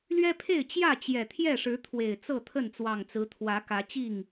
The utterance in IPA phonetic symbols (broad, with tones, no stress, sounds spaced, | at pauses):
l ɥ ɛ˦ pʰ e˥˨ ɪ̯ t͡ɕ j ä˥˨ t͡ɕ j ɛ˨˩ t̪ʰ j ɛ˥˨ ʂ ɻ̩˨˦ t̪ʰ w e˨˩ ɪ̯ t͡s ɤ˥˨ t̪ʰ ə˥˨ n t͡s w ɑ˨˩ ŋ t͡s ɹ̩˨˦ t̪ʰ w ä˨˦ k ä˨˦ t͡ɕ i˥˨ ŋ